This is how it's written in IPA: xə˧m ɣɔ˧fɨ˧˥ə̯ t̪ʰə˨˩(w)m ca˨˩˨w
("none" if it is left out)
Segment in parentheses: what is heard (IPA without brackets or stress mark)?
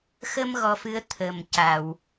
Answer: none